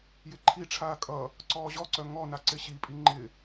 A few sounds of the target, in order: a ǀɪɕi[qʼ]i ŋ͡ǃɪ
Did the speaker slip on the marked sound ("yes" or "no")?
yes